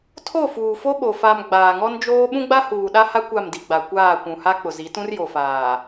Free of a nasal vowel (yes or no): no